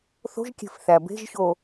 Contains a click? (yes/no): no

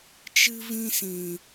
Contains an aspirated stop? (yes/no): no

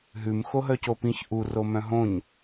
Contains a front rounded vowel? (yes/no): yes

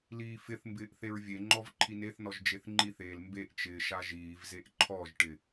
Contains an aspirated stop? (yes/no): yes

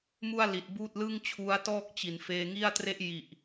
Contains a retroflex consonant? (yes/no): no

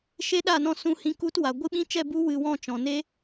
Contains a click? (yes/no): no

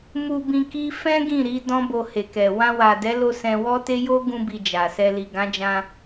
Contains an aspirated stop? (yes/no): no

